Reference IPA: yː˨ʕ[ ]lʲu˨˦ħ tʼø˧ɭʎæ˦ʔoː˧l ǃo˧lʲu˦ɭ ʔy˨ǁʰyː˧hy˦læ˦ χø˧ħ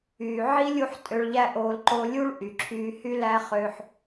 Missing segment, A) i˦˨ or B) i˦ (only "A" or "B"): B